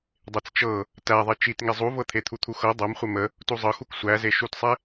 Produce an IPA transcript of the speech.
dˤ e t͡s t͡ʃ ɤ | t æ ðˤ e t͡ʃ i t ŋ e zˤ u v ɤ t̪ʰ e t̪ʰ u t̪ʰ u x ɤ dˤ ɤ m χʷ e m ə | t u zˤ ɤ x u k sʷ æ z e ʃ u t sˤ e

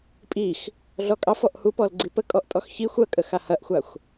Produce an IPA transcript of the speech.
pʼ i x | ɮ ɔ kʼ ɑ f ɔ ʔ h u p ɔ l ɡ͡ǀ i p ə kʼ ɔ ʔ tʼ ɔ x ç i xʷ ɐ kʼ ə x a h ɐ ʔ xʷ a xʷ

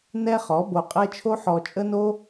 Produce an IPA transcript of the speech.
n ɛ˦ χ ɔ˨˦ b o˧ qʼ ɛ˦ t͡ʃʰ o˦ ħ ɔ˧ t͡ʃʼ ə˦ n o˦

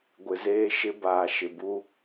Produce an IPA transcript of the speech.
ɡʷ ɪ˨ z eː˦ ʃ ɪ˦ b aː˨ ʃ ɪ˨ b u˦

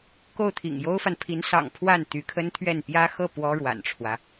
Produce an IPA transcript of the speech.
k o˥˩ ʊ̯ t̪ʰ ḭ˨˩ ŋ j o˥ ʊ̯ f a˨ n pʰ i˧˥ n s ɑ̰˨˩ ŋ pʰ w a˥˩ n t̪ y˧˥ kʰ ə˥ n t̪ʰ ɥ ɛ˥˩ n p j ä˥ x ɤ˥˩ p w ɔ˥ ɻ w a̰˨˩ n ʈ͡ʂʰ w ä˦

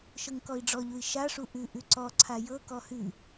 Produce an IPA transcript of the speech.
ʃ ɤ ŋ k ɔ i̯ ɖ͡ʐ ɔ ʎ u i̯ ʃ a ʂ u ʔ ʉ ʔ ʉ ǀ ɔ ǀʰ a j ɤ k ɔ h ʉ

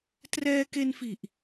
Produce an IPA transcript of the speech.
t r ɛː˧ k e˧ n f i˨˩ ʔ

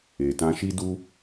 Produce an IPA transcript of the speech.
e˨ t ã˧ ʃ i˦ d u˦

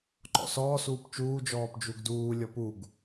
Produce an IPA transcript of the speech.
ǃ ɔ̰ s ɔː s uː p t͡ʃ uː d͡ʒ ɔː p d͡ʒ u ɡ d uː lʲ ɔ p u ɡ

